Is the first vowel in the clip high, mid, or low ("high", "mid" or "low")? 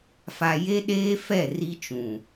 low